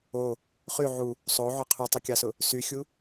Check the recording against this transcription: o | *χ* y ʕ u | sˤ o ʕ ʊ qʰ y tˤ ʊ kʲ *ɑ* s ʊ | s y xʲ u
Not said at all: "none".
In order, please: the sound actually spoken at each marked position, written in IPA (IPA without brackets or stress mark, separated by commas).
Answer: χ, ɑ